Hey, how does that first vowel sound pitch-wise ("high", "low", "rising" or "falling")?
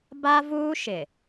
high